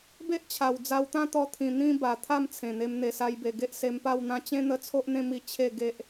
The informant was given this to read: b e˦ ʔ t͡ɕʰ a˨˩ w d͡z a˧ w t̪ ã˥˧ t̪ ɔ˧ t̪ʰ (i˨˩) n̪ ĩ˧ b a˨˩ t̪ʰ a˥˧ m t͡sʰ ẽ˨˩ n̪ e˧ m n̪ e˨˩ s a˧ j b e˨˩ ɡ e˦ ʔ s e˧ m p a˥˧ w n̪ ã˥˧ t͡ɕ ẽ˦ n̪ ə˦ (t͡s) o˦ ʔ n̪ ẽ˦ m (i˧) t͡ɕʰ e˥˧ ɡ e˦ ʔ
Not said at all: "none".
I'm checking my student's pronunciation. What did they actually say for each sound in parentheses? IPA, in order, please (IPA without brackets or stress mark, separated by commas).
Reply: ĩ˨˩, t͡sʰ, i˧